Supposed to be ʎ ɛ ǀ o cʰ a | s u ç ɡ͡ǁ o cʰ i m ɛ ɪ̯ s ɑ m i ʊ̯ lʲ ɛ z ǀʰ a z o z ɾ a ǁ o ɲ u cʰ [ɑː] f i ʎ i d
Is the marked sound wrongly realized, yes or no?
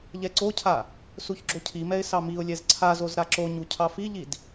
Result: yes